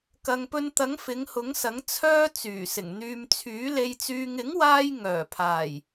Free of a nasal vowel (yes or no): yes